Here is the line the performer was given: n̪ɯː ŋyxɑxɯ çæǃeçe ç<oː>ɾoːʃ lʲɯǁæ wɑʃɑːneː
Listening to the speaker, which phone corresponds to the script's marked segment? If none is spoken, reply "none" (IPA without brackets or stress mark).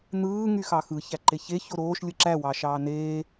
o